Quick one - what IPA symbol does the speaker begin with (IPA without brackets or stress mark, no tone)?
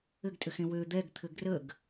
ɘ